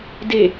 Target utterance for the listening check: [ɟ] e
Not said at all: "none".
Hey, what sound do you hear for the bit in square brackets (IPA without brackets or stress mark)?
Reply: d